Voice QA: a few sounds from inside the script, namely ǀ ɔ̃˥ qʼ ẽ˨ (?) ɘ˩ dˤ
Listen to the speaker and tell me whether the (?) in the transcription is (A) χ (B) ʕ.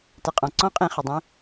A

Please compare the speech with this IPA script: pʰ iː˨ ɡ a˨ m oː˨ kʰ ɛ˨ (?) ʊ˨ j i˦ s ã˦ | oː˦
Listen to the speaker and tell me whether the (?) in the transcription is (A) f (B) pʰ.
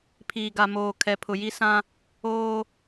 B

